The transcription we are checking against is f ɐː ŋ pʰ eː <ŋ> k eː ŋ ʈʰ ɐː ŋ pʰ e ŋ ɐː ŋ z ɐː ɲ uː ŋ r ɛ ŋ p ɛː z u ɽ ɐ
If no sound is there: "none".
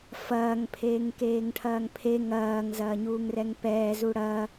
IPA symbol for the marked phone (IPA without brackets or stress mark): ŋ